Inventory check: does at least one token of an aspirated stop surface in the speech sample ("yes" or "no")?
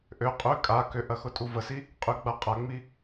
no